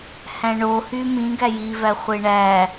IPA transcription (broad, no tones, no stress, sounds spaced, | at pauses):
h æ̃ ɳ o h y m ĩ ɡ æ j i v æ χʷ e ɳ æ